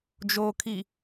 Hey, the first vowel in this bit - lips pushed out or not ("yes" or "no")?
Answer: yes